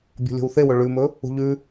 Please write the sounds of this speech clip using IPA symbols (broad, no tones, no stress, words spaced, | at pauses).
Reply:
bʲo̤lʲo̤wθewɵ ɭʉmɵ | ṳʎʉ